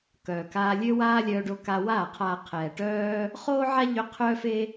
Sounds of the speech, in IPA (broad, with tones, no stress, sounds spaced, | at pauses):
k œː˨ k aː˧ lʲ ø˦ w aː˦ lʲ œː˧ ɖ o˧ k a˧ w aː˦˨ qʰ aː˨ qʰ ɛː˨ ʈ œː˦ | χ oː˦ ʕ a˦ ʎ ø˧ qʰ œː˦ f e˦